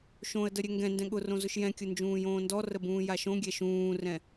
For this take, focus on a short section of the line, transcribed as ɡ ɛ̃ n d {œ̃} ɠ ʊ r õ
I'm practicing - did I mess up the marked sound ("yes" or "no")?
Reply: yes